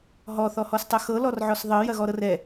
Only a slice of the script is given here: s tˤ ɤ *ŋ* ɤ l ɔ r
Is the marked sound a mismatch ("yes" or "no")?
yes